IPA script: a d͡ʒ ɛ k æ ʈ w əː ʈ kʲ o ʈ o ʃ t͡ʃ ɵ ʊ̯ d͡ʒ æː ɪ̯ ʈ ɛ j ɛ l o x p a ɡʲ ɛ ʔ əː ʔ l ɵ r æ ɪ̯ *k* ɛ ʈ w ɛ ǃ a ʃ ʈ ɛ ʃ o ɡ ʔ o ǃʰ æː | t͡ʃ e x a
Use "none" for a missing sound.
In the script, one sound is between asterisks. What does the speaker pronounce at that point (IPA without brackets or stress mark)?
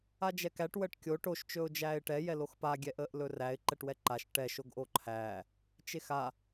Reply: ǃ